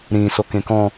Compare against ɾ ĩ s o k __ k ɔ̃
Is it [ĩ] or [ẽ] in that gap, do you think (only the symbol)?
ẽ